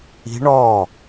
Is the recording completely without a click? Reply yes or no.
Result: yes